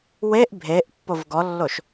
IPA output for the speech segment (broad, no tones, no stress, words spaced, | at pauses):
weʔ bʱeʔ pːovɡɔlːoʃ